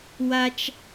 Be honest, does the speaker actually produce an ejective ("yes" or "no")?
no